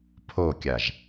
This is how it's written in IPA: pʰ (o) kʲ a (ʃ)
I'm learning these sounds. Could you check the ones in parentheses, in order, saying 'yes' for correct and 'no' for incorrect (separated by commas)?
yes, no